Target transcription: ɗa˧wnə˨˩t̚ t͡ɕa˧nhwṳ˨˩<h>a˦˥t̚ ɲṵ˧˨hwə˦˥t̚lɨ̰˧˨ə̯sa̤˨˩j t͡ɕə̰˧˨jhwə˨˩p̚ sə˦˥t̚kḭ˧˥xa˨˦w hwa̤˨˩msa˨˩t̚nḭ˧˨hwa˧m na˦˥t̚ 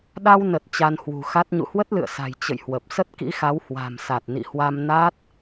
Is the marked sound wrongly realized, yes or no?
yes